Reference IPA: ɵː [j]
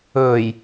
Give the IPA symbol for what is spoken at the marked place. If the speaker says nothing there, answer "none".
j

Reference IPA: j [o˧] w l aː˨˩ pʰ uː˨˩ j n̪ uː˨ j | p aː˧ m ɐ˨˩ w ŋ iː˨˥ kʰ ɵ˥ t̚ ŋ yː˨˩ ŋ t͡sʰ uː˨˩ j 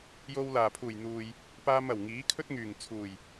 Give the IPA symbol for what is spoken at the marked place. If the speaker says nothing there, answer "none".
o˧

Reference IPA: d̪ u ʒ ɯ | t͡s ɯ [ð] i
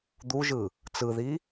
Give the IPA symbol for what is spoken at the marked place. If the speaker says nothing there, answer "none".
ð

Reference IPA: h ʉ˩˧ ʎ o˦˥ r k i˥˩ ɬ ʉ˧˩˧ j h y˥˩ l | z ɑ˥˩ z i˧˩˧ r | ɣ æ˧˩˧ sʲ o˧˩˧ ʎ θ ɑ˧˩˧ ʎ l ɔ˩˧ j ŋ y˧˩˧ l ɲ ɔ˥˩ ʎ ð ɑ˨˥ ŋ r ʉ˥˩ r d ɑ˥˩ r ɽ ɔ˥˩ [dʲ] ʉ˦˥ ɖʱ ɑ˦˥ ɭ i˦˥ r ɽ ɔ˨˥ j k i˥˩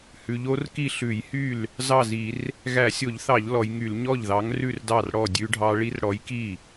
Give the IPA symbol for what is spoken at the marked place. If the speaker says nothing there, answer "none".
dʲ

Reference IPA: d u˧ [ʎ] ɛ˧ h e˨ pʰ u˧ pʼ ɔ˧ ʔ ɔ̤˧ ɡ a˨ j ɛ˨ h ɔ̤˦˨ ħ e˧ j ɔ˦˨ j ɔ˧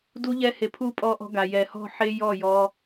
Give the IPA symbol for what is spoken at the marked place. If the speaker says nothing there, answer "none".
ʎ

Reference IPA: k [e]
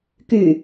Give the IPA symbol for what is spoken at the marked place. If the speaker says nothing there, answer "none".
y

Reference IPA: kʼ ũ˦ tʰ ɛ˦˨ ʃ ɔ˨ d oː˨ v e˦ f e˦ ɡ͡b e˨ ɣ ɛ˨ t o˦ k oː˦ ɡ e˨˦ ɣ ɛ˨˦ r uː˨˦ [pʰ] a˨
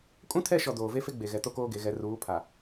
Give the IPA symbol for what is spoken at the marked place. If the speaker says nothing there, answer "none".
pʰ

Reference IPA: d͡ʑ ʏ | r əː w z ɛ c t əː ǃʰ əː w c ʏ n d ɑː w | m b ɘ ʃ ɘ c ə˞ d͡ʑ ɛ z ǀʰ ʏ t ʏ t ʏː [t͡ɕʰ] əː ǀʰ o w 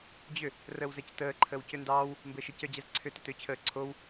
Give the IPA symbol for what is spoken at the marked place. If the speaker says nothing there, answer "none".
t͡ɕʰ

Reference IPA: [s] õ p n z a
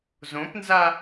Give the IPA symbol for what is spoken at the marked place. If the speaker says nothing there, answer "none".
z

